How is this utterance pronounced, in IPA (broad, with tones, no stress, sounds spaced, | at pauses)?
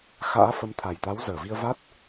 x a̰ː˧˥ f ə˨˦ m t̪ʰ a˨˩ j t̪ a˨˦ w z əː˧˩ v i˧ ə̯ v a˦˥ t̚